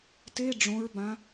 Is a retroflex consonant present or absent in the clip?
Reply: present